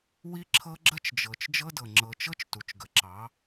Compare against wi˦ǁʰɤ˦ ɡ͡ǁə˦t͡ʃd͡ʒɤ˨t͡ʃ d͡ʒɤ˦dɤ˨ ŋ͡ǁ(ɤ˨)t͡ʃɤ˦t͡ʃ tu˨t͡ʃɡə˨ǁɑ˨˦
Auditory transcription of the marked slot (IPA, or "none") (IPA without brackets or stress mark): ɤ˨